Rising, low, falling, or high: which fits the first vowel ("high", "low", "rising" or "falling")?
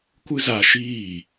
high